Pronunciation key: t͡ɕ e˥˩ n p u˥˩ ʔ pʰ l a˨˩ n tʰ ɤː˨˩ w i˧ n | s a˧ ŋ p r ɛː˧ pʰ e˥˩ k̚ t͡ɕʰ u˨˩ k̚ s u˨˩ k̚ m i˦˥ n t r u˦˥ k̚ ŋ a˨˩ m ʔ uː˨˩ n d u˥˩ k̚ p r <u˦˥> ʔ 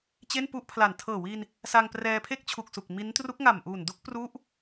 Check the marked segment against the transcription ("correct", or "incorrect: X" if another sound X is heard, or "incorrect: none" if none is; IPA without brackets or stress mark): correct